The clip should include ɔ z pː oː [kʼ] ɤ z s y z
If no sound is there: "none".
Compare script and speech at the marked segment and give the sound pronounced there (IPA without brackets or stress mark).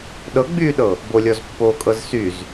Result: kʼ